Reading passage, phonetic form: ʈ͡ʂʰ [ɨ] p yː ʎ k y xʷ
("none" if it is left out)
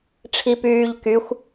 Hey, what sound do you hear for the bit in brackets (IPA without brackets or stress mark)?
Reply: i